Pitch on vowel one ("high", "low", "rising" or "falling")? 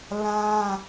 high